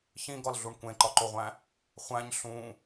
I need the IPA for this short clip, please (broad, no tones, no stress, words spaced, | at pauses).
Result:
çĩɡɒlɮuɳ kʷẽǃɒǃoʁʷæ̃ | χʷæ̃ɲ ɬũ